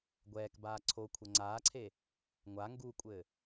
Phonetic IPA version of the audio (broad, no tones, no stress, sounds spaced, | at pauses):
ɡʷ ɛː k b aː ǀʰ o kʷʰ ɛ ŋ͡ǀ aː ǀʰ e | ŋʷ a ŋ ɡ u kʷʼ ɘ